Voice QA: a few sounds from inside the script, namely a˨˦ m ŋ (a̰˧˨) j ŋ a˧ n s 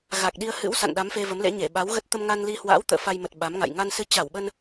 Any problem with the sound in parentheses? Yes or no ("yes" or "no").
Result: no